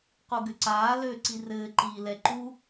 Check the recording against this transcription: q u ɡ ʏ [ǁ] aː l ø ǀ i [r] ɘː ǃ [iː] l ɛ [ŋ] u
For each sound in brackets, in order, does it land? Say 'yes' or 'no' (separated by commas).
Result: no, yes, yes, no